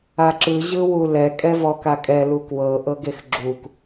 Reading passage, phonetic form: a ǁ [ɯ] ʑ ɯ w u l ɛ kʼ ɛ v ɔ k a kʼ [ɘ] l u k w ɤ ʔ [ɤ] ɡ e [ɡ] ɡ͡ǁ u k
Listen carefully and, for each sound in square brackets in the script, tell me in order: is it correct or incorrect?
correct, incorrect: ɛ, correct, incorrect: x

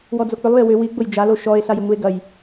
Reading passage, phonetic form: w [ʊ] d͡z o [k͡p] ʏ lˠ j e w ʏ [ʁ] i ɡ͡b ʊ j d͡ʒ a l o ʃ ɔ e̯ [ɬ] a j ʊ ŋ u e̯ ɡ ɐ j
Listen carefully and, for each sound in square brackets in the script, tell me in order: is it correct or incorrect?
incorrect: ɔ, correct, incorrect: w, correct

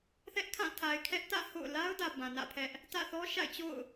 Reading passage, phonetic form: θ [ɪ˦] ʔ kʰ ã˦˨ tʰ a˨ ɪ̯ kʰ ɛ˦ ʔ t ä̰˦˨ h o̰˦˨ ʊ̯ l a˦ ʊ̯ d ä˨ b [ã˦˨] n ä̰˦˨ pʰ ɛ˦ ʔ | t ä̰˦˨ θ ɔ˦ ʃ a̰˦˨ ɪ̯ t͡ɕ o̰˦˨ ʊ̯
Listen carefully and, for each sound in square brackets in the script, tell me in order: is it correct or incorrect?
incorrect: ɛ˦, incorrect: ã˨

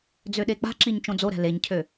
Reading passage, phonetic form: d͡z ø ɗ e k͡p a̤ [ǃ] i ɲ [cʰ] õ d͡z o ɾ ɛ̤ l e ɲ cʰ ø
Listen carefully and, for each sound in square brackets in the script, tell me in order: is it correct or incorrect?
incorrect: ǁ, incorrect: t͡ʃ

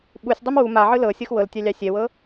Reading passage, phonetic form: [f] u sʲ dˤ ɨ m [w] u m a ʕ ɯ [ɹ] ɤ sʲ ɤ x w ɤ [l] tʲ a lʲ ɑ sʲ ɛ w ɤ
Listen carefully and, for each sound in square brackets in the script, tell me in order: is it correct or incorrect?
incorrect: ɓ, correct, incorrect: l, correct

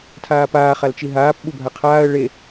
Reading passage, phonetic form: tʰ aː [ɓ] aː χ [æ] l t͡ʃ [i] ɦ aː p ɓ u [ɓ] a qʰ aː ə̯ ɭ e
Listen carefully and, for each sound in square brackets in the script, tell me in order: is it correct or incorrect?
incorrect: p, incorrect: a, correct, incorrect: bʱ

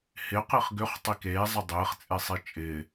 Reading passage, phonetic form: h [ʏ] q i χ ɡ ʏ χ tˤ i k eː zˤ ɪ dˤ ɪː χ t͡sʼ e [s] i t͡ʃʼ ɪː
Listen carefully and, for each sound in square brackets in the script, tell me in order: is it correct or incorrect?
incorrect: ɪ, incorrect: sˤ

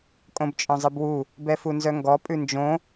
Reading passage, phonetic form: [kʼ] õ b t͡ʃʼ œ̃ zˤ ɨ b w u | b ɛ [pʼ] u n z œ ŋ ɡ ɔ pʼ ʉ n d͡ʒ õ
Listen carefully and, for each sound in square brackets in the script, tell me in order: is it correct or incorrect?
correct, incorrect: f

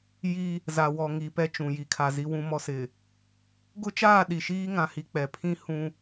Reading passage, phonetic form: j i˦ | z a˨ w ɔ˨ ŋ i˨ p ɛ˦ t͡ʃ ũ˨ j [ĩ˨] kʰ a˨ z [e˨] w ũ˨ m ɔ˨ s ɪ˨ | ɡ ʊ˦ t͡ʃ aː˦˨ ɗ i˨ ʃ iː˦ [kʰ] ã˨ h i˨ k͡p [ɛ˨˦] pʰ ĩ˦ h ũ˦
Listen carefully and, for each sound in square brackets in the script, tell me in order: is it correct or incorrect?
incorrect: i˨, incorrect: i˨, incorrect: ŋ, incorrect: ɛ˨

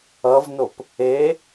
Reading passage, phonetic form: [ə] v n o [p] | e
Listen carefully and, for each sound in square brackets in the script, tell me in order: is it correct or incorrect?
incorrect: ʌ, correct

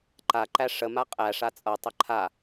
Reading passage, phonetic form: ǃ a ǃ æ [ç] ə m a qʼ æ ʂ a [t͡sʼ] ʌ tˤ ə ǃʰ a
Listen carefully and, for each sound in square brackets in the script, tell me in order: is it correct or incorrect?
incorrect: ʂ, correct

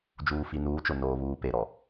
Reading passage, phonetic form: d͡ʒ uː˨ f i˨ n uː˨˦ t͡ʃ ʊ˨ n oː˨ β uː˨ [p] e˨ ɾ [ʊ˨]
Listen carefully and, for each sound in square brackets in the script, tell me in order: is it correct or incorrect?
correct, incorrect: ɔ˨

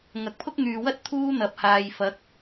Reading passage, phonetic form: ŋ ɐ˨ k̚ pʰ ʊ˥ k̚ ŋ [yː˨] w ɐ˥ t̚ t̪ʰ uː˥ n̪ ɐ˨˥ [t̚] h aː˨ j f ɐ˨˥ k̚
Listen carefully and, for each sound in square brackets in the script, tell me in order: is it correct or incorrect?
correct, incorrect: p̚

